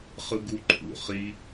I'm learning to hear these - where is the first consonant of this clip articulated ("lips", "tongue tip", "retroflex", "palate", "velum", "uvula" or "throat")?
uvula